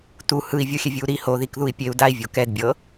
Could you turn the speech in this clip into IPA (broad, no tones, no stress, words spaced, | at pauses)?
tu hɯi̯vʲoxʲɛvʲɯu̯ ɾi hoðikðui̯ pʲeu̯ dai̯vʲo kɛdbʲɤ